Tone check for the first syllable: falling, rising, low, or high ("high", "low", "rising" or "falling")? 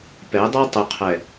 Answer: rising